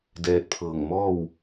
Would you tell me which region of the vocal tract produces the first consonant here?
tongue tip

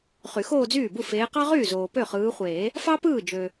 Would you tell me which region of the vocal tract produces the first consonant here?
uvula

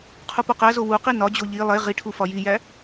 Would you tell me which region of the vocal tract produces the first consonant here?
uvula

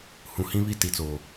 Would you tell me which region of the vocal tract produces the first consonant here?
throat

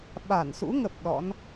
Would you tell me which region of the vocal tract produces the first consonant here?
lips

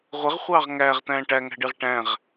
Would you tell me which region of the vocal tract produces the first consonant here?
uvula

